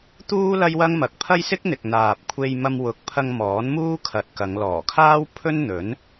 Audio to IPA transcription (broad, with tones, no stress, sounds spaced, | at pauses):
t̪ uː˥ l ɐ˥ j w ɐ˥ ŋ m ɐ˨˥ k̚ pʰ ɐ˥ j s ɪ˥ k̚ n̪ ɪ˨ k̚ n̪ aː˨ p̚ kʷʰ e˧ j m ɐ˧ m w ʊ˨˥ k̚ pʰ ɐ˧ ŋ m ɔː˨˥ n m uː˥ kʰ ɐ˨ t̚ k ɐ˨˧ ŋ l ɔː˨˩ kʰ aː˥ w pʰ ɵ˥ n n̪ ɵ˨˥ n